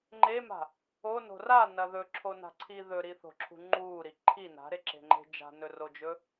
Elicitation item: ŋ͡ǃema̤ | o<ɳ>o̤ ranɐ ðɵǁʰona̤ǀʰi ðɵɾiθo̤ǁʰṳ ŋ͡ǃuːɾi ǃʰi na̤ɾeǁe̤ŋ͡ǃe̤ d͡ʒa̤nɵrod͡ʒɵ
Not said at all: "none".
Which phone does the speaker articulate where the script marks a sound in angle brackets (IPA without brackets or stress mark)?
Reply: n